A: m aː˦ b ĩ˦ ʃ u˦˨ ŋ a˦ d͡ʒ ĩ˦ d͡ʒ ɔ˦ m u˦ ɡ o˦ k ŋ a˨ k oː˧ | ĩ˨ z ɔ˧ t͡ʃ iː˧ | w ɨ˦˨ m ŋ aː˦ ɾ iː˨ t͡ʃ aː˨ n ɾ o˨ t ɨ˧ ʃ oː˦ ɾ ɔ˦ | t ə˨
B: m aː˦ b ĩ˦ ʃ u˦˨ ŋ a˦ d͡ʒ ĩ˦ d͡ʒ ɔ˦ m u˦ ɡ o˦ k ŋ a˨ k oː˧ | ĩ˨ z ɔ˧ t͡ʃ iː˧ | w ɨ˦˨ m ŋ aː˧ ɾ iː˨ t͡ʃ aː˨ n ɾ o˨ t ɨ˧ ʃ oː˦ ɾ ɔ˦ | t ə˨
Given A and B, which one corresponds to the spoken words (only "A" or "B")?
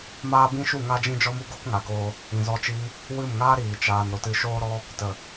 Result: A